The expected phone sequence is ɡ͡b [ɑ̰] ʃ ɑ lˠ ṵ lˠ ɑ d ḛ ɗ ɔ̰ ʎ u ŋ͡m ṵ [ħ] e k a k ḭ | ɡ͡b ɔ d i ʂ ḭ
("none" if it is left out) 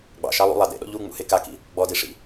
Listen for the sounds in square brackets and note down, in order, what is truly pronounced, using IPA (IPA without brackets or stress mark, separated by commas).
ɑ̰, h